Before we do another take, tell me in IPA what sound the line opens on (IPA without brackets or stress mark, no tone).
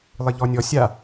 lˠ